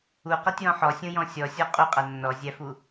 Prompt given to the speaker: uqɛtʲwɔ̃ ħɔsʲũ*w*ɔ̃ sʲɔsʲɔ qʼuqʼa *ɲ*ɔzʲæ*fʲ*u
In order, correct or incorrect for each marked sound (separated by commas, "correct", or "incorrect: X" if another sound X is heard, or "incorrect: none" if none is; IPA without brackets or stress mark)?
incorrect: j, incorrect: nː, incorrect: f